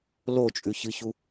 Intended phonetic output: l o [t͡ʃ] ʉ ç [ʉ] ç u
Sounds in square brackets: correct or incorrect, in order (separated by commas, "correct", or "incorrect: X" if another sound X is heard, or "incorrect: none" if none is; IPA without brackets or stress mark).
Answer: incorrect: t͡ʃʼ, incorrect: ɨ